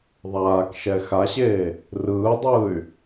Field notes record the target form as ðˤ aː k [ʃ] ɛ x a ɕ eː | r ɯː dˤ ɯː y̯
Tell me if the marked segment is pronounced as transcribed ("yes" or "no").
yes